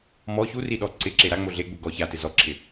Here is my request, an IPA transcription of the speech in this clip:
m ɔ ç u r i ɗ ɔ ǀ ɪ ǁ e ɾ a ŋ͡m o ɮ e ɡ͡b u ɡ ɔ ç a t ɪ z ɔ ǁʰ ɪ

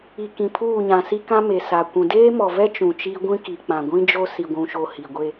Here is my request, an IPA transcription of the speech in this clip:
i˨ k ĩ˨ pʰ uː˦˨ ɲ ã˨ s i˦ k ã˦ m e˨ s a˨ kʷ ũ˨ d eː˦ m ɔ˨ v ɛ˦ t͡ʃ ũ˨ t͡ʃ i˦ ɡʷ ĩ˦ k i˨ k͡p ã˨ ɡʷ ĩ˦ d͡ʒ o˦ s i˨ ɡʷ ũ˨ ʃ o˨ h i˨ ɡʷ e˦

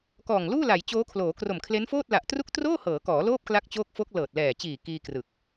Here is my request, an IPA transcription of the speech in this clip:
k ɔː˨˩ ŋ l uː˥˩ l a˩˦ j t͡ɕ oː˦˥ kʰ l oː˩˦ k r o˨˩ m kʰ l e˦˥ n f oː˥˩ t̚ l a˨˩ ʔ t r u˥˩ k̚ t r oː˥˩ h ɤː˩˦ k ɔː˩˦ l oː˥˩ p̚ k l a˦˥ k̚ t͡ɕ oː˦˥ k̚ f o˦˥ k̚ l ɤː˨˩ t̚ l ɛː˨˩ t͡ɕ iː˨˩ k iː˧ k r ɯ˨˩ k̚

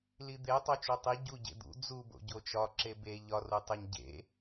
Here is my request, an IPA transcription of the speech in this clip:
l i d̪ e tˤ o t͡ʃ u tˤ i ɟ u ɟ ḛ d̪ ṵ d͡z u b o̰ ɟ o t͡ʃ ɒ ǁ e b e ʎ ɒ r u tˤ e ɲ ɟ ḛ

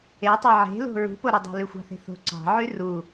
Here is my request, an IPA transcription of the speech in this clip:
e tˤ e ʕ e̤ l o̤ ɹ ṳ p o ɾ y dˤ o̤ l y xʷ ɑ̤ θ e̤ θ o̤ ǀ ɑ̤ ʕ y r u

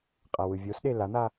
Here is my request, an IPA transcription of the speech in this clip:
qʼ a w ɯ vʲ o s ɗ e l a n̪ a

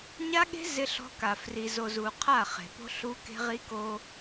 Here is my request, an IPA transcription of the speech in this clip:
ɲ a˦ ɠ e̤˦ z ɪ˦ ɬ ɔ̤˦ k a˨ f r i˨ z o˨ z u˨ qʰ a˦˨ χ e̤˨ p o̤˦ ɬ u˦ k e̤˦ ʁ i˦ k o˦

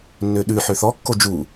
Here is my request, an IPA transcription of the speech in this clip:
nː ø ɗ ʉ ħ ø θ ɔ kː o d͡ʒ u

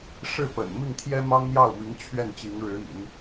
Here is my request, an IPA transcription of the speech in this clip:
ʂ ɻ̩˥˩ p ə̰˨˩ n m i˥˩ ŋ t̪ʰ j ɛ˥ m ɑ˥ ŋ n̪ j ɑ˥˩ ʊ̯ m i˧˥ ŋ t͡ɕʰ ɥ ɛ˥˩ n t͡ɕ i˧˥ ŋ ɻ ɻ̩˧˥ ḭ˨˩˦ n

